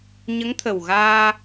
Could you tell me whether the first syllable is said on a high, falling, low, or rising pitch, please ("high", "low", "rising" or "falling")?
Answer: rising